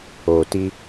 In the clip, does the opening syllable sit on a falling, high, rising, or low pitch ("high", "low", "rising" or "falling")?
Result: low